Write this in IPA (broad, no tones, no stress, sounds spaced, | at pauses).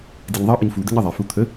d i ɲ ðˤ ʌ ʔ ʌ ɲ f u d̪ ə ɲ ʌ ðˤ ɛ f u t̪ʰ ə